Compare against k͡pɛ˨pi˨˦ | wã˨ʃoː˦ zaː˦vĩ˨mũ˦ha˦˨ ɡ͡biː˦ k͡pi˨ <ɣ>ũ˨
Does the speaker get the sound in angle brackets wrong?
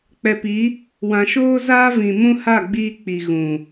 no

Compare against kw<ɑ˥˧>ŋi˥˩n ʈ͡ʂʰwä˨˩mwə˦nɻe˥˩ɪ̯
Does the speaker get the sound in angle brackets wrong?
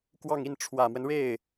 no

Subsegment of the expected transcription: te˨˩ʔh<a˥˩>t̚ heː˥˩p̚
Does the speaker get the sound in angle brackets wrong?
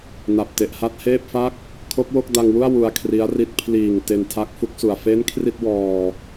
no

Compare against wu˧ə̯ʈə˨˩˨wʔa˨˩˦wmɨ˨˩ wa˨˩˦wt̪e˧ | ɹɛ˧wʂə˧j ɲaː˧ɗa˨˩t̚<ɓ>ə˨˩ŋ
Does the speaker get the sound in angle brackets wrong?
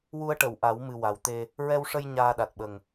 no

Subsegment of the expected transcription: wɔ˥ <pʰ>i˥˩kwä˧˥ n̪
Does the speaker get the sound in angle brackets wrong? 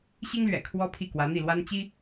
no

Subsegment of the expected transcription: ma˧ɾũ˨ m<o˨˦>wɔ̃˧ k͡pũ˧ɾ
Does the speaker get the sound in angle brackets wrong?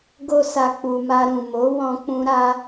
no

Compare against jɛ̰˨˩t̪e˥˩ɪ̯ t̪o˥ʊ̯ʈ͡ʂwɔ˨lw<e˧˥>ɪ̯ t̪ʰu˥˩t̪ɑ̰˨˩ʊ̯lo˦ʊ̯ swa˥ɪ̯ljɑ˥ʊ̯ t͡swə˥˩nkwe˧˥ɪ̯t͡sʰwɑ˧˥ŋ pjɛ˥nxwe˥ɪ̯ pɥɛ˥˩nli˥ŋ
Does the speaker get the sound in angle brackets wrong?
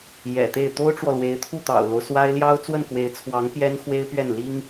no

